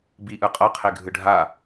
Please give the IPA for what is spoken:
biʔɯ qʼɤqʰe ɡʱɯɖʱa

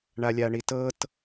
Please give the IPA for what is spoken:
ɳalʲaɳitɤt

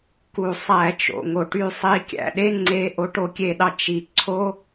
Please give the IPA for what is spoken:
ku˩ sˤæ˧˩˧t͡ʃo̰˩ŋo˩ʈy˧˩ sˤi˨˦ kʲæ̰˩ɗe˧˥˧ŋ͡ǀe˨˦ ʔo˨˦ʈo˧˩kʲe˧˩˧ɗɑ˧˩ t͡ʃi˩ ǀʰo˧˥˧

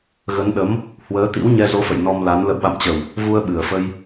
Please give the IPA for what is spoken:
ɣə˨˦nɗə˨˦m | hwəː˨˦t̪ḭ˧˥wɲɛ˧ zo˨˦fə̰˧˨j nɔ˧mla˨˦n lə̰˧˨wɓa̰˧˨mt͡ɕə˨˩w | vu˧ə̯ɓɨ˨˩ə̯fə˧j

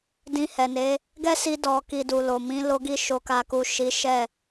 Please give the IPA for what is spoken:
dĩ˧hɛ˨ne˨˦ | ɡɛ˦si˧ dɔ˨ki˨ du˨lo˨mĩ˨˦ lo˧ɡi˧ ʃo˨ka˨ku˨ ʃi˨˦ʃɛ˦˨

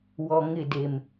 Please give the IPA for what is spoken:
wɔ˨ ŋɪ˦˨ de˨m

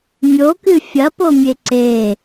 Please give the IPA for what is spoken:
mʲokɨ fʲɐpomʲe ǀe

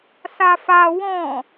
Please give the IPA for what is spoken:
safa wɔ̃

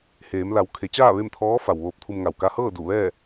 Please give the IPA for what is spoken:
heː˩˧mla˩˧w kʰe˩˧t͡ɕaː˥˨ ʋe˥˨mt̪ʰɔː˧˥ fa˩wʋoː˧p̚t̪ʰu˧mŋa˧˩w ka˧hɤː˥˨ du˧˩ʋɛː˥˨

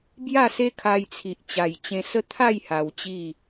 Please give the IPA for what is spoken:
bja˥˧se˦kʰa˧j t͡sʰi˨ʔt͡ɕa˨˩jt͡ɕẽ˧sə˦ t̪ʰa˥˧j ha˧wt͡ɕi˥˧

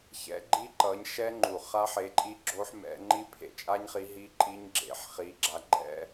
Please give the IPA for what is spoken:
çɛ̰˨˦ɡ͡ǃi˦˥ ǃʌ˨˦ɲʃɛ˦˥ŋ͡ǃu˨˩ χa˦˥ħe˨˦ǃʼi˦˥ ɡ͡ǁo˦˥ħmɛ̰˨˦ ŋ͡ǃi˦˥pʰḛ˨˩t͡ʃʼa˦˥ɲχi˨˦ ɦi˦˥ǃʼi˦˥ɲɡ͡ǁḛ˨˦ħ χi˨˦ɡ͡ǁa˨˦ɡ͡ǃɛ̰˦˥

